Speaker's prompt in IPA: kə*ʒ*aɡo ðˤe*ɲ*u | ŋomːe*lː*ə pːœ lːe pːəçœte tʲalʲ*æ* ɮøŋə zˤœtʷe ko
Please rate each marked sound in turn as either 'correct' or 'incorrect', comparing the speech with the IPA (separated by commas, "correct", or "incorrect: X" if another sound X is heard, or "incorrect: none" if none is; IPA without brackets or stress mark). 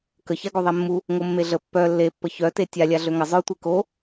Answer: incorrect: ç, incorrect: mː, incorrect: ɮ, incorrect: a